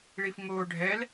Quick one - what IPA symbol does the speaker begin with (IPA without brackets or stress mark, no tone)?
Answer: ɭ